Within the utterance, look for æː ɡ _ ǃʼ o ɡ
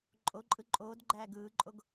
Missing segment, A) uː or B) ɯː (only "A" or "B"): B